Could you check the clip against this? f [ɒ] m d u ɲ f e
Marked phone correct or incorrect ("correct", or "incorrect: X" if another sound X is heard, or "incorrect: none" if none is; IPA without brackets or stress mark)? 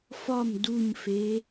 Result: correct